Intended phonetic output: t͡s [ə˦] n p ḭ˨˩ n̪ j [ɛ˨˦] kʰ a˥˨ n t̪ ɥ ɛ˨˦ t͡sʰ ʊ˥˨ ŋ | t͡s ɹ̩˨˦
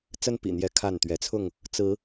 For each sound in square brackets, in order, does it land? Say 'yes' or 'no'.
yes, yes

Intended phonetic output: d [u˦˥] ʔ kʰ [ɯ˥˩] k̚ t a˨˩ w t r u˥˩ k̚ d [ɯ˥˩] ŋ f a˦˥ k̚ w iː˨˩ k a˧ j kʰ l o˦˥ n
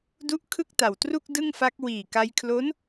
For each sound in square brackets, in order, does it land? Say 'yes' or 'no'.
yes, yes, yes

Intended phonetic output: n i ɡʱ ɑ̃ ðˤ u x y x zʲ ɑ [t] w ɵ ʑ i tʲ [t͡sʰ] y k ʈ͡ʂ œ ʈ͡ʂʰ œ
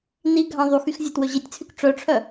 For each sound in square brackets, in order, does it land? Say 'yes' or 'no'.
yes, yes

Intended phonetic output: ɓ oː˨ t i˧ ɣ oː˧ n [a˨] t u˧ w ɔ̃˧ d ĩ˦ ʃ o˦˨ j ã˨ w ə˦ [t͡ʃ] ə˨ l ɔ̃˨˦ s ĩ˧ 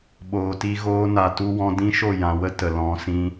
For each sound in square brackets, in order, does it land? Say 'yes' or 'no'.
yes, no

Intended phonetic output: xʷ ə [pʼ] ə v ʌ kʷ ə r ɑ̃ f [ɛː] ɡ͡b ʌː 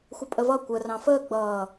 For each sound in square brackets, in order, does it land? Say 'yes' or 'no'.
yes, no

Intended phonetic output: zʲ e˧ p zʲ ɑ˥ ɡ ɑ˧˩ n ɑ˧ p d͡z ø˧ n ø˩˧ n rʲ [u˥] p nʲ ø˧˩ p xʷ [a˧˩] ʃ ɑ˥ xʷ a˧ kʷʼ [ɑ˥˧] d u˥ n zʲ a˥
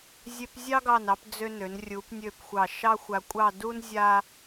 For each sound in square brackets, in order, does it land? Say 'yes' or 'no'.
no, no, yes

